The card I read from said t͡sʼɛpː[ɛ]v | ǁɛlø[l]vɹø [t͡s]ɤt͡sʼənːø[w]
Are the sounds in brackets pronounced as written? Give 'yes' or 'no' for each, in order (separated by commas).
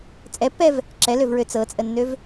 yes, no, yes, no